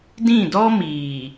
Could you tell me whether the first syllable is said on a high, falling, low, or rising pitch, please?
falling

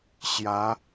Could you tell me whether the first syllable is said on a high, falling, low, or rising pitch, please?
rising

